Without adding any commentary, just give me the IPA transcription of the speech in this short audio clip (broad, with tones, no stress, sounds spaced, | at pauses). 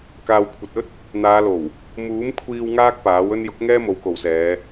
k aː˨ w kʷʰ ɐ˨ t̚ ɵ˥ t̚ | n̪ aː˨˧ l o˨˩ w | m uː˨˥ m kʷʰ iː˧ w ŋ aː˥ k̚ p aː˨˥ w ɵ˧ n j ʊ˨˥ k̚ ŋ ɛː˥ m o˨˥ w k o˨ w s ɛː˨˧